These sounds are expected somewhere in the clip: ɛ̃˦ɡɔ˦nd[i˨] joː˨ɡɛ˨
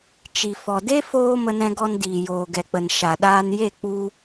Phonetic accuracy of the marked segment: incorrect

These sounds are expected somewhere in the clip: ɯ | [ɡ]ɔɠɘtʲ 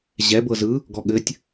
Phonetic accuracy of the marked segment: correct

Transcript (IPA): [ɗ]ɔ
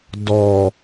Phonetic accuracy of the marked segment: incorrect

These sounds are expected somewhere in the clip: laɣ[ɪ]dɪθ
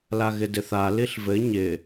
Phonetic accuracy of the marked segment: correct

